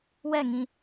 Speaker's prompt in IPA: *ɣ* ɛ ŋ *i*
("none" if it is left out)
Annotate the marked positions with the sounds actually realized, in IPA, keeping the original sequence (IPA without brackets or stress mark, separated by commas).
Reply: w, ĩ